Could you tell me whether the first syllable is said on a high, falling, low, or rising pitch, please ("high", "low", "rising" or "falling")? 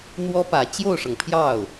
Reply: high